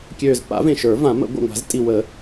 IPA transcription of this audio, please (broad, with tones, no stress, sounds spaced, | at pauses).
kʲ øː˨˩ z p a̰˨˩˦ v ẽ˨˩ ʃ ə˞˨˩˦ v ã˨˩˦ m ə̰˨˩˦ ɡʷ a̰˨˩ ŋʷ a̤˨˩˦ z tʼ i˨˩ w ə˨˩˦